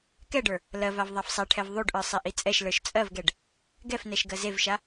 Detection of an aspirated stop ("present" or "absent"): present